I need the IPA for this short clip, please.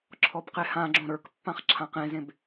ǁʰ ɔ b q e h ã ɡ͡ǁ õ ɾ ə˞ k pː ã χ ǁʰ ã q ẽ z ẽ b

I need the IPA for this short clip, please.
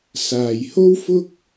s aː˨ j h o˥ w f ʊ˥ k̚

